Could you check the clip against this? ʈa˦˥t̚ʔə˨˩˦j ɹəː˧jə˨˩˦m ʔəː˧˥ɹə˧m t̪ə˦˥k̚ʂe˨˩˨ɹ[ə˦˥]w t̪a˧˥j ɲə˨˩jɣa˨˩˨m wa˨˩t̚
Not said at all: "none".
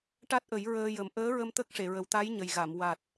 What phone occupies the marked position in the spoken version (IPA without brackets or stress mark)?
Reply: ə˨˩